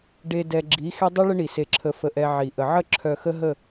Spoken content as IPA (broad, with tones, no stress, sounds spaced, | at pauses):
ɖ e˨ d ɛ˨ ɡ͡ǁ i˨˦ x e˦ dˤ i˦ ɭ ə˦ ɳ i˨ s e˨ ǁʰ ə˨ f ə˨ ʔ ɛ˨ ʕ i˨ ʔ ə˨ ʕ ə˦ ǁʰ œ˨ x ə˦ ɦ ə˦˨